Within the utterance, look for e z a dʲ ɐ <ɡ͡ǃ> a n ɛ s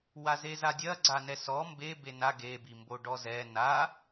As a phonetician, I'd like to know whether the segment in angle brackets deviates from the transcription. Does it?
yes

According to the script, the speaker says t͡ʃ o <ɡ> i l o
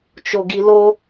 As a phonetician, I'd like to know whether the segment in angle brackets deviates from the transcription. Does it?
no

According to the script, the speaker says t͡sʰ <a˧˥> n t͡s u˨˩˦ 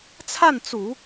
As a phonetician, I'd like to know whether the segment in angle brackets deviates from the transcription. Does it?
yes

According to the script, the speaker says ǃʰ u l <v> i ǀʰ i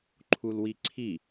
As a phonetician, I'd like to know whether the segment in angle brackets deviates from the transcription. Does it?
yes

